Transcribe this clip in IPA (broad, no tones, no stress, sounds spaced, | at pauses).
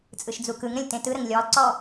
t͡sʼ ɯ ʃ d͡z u k ɯ ŋ ɾ ə̃ lʲ t ẽ t ɯ ɾ ə ŋ lʲ ɔ lˠ ǀ ɔ